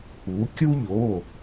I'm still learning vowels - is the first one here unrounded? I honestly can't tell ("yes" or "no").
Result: no